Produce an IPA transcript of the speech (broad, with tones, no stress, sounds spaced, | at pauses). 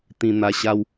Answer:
t̪ ĩ˧ n̪ a˧ ɕ a˦ w